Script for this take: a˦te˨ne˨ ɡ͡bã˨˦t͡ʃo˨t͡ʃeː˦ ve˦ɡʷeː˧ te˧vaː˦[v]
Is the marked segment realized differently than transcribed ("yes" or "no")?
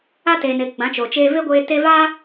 yes